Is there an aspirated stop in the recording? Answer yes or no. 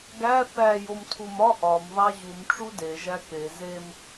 yes